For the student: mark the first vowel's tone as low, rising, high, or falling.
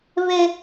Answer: high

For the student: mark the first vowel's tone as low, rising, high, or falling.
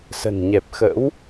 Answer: low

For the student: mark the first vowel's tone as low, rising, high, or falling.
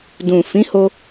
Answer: low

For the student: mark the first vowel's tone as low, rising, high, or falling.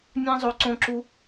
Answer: high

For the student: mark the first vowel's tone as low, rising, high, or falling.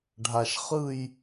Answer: low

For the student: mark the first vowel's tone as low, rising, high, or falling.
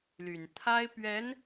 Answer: low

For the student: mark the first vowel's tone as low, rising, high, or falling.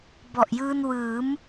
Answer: low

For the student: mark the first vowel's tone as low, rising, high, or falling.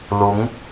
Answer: rising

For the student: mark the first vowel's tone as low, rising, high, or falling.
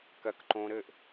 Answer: high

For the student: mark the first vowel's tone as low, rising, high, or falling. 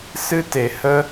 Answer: high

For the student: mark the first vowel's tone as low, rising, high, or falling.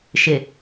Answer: low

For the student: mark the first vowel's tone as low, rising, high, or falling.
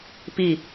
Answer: falling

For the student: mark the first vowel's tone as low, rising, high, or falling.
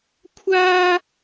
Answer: high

